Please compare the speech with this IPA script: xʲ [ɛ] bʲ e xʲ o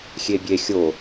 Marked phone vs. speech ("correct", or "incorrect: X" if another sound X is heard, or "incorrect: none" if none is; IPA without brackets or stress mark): incorrect: e